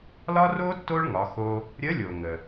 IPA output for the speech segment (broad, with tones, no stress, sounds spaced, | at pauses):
l ɒ˥ r o˥ tː o˥ ɭ ŋ ɒ˩˧ x o˧ | ɾʲ ə˧˥ lʲ o˩ ŋ ə˩